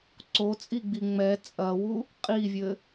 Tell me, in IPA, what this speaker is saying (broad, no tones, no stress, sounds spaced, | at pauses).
ǀ o t͡sʼ i ɡ͡b i ŋ͡m ɛ t͡sʼ ɐ w u | qʼ i vʲ ɘ